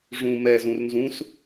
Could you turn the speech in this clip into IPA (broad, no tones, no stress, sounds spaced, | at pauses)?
ʐ ũ m ɛ z ũ r n z ũ s